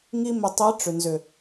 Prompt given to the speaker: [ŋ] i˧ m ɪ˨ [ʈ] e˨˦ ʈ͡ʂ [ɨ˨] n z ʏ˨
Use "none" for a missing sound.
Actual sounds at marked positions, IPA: ŋ, tˤ, ʏ˨

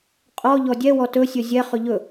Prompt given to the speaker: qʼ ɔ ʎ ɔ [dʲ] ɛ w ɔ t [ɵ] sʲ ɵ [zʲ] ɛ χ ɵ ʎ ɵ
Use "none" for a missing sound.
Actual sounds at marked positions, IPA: dʲ, ɵ, zʲ

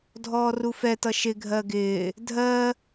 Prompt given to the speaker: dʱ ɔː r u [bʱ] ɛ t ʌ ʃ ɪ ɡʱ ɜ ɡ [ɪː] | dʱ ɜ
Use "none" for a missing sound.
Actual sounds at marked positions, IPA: f, ɪː

